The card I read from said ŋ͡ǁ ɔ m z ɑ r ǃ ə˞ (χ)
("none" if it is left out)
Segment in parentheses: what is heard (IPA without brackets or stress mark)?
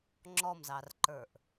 ʔ